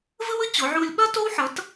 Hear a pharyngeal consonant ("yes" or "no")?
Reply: yes